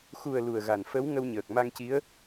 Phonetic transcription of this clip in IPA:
x u˨˩ ə̯ l u˨˩ ə̯ ɣ a˨˩ n f ə˧˥ w ŋ ə˧ w ɲ əː˨˩ k̚ m a˧ ŋ c i˧˥ ə̯

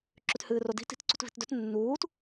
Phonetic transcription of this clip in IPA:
ǁ ʉ t h ɨː r o d i̤ t i̤ t ǀ ṳ t v i̤ t d ɵ t nː uː t

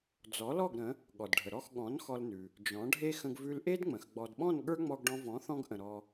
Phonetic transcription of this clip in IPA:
d͡z ɔ˩˥ l ɔ˥˩ ɡ ɾ ə̃˩˥ | ɠ ɔ˩ d ɖʱ ə˩ ɾ ɔ˥˩ x ɠ ɔ̃˩˥ n x ɔ˧ l n ʉ˩ | d͡ʒ ɔ̃˩˥ ɖʱ e˥ x ə̃˧ ɡ v ʉ˧ l ʔ e˥ d ŋ͡m ə̃˩ x ɡ͡b ɔ˩ d ɓ ɔ̃˥˩ n ɠ ə˞˥ ŋ͡m ɔ˧ ɡ ɖ ɔ̃˧ v ɔ̃˩˥ θ ɔ̃˧ ɡ ʔ ə̃˩ ɾ ɔ˧

